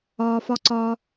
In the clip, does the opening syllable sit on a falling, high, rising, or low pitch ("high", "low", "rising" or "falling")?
low